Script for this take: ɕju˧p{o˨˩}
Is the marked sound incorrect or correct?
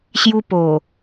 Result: correct